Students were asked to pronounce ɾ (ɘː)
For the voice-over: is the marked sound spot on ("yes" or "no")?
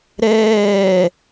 no